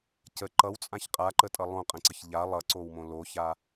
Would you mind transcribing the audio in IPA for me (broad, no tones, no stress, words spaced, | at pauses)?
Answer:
cə ǃʌwt͡sʼãç qʼaǃətʼʌ lˠõqʼə̃ǀəç ʎa lˠʌǀowmõ loça